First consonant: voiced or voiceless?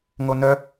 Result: voiced